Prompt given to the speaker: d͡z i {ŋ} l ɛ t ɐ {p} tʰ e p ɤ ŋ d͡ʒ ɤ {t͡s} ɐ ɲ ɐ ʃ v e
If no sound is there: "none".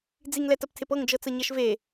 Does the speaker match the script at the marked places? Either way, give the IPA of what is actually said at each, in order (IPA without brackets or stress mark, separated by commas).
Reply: ŋ, p, t͡s